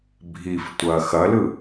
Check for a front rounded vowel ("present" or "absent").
absent